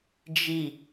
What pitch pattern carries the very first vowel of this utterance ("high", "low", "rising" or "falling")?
low